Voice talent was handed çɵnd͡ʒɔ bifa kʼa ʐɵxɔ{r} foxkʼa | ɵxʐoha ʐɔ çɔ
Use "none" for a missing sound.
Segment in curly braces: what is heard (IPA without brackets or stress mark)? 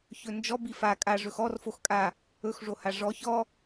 r